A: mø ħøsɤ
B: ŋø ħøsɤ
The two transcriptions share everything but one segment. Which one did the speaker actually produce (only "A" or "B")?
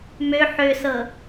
A